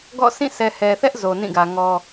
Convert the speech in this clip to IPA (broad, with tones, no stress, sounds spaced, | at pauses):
ɡ ɔ̰˦˨ s ĩ˦˨ sʰ ɛ˨ h ɛ˨ θ ɛ˦ ʔ z o˨ n ĩ˦˨ ɡ ä˨ ŋ ɔ˦